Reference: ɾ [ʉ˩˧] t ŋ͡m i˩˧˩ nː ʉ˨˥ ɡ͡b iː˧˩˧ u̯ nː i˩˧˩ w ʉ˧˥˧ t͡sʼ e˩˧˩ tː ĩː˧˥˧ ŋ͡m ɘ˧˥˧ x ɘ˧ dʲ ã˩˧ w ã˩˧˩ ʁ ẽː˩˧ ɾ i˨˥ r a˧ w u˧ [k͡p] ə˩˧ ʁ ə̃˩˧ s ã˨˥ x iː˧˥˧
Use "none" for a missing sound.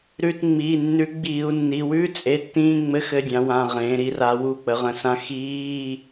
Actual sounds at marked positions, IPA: ʉ˧, k͡p

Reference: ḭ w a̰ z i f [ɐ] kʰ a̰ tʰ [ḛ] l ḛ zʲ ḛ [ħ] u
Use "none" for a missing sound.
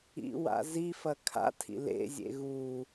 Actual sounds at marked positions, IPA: ɐ, ḭ, ɣ

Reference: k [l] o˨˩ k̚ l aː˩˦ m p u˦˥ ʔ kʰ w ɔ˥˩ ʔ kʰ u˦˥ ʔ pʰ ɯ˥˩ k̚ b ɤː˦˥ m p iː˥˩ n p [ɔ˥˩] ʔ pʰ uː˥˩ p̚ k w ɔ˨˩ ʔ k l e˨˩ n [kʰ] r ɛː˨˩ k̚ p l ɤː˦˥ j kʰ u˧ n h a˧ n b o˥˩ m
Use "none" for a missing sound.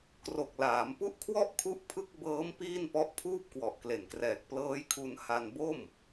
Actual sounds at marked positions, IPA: r, ɔ˦˥, k

